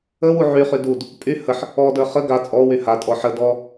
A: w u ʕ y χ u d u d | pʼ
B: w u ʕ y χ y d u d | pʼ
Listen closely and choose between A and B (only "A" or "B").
B